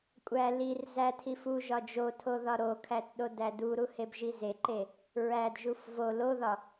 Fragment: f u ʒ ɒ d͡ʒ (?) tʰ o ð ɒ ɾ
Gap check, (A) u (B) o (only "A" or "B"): B